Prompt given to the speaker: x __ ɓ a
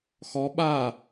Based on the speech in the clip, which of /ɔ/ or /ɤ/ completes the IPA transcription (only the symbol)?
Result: ɔ